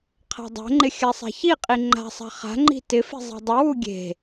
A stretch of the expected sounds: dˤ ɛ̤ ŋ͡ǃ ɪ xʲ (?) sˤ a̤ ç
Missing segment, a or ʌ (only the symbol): a